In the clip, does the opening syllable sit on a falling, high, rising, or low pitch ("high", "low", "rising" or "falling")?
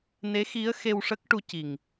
rising